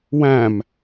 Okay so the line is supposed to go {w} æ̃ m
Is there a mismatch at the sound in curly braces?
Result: no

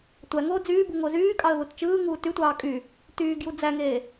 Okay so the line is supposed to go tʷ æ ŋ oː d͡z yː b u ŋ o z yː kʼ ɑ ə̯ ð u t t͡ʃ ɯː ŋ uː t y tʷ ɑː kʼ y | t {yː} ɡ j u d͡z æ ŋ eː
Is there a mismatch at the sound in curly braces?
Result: no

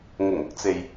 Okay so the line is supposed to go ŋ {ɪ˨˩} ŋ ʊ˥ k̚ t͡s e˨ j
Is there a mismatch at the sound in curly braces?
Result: no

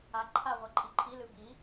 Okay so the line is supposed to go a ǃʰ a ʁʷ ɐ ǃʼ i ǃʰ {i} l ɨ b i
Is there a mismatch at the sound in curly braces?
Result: no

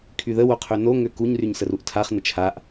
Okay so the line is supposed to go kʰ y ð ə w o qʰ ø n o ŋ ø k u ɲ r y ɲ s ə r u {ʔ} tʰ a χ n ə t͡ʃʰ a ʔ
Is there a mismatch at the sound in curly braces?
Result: no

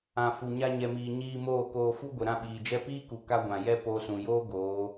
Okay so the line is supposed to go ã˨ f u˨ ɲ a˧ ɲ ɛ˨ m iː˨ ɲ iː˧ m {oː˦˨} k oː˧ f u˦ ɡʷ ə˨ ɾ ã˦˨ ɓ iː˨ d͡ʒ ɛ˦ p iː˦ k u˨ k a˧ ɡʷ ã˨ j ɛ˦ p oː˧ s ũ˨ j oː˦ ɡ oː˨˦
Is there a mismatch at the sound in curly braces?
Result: no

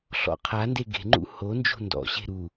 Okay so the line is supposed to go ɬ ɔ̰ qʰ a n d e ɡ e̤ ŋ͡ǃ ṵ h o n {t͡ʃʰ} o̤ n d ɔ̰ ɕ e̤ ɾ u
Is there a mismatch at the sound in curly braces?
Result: yes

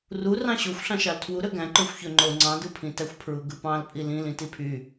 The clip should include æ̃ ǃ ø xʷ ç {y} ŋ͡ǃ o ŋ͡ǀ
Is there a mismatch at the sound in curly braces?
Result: yes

